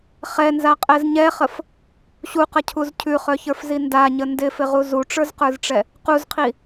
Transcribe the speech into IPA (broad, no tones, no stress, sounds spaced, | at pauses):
χ ɛ n z a qʼ ɛ z ɲ ɛ χ ə f | ɕ u q ə cʰ u z cʰ ʉ χ œ ç ə˞ f z i n d a ɲ ə n d ɪ f ɪ ʁ u z u ʈ͡ʂ ə˞ z q ə˞ z ʈ͡ʂ ɛ | q u z qʰ i